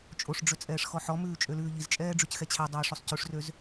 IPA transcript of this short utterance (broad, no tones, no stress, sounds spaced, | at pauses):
t͡ʃʼ o ʂ ɖ͡ʐ ø t͡sʼ ɛː ʂ x ɔ ħ ɔ m ʉː t͡ʃʼ ø l ʉː ʎ i z t͡ʃʼ ɛː ɖ͡ʐ y c x ɛ t͡ɕʰ æ dˤ ɛː ʂ o sˤ c ʉ ʂ r ø z